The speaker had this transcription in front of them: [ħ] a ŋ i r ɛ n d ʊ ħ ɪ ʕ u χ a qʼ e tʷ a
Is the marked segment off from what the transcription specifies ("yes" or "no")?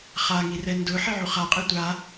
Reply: yes